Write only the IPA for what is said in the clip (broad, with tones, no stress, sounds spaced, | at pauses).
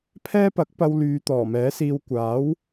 pʰ ɛː˥ p ɐ˨˥ k̚ p ɐ˧ w l yː˨˧ t̪ ɔː˨˩ m ɛː˨˥ s iː˧ w kʷ aː˨˥ w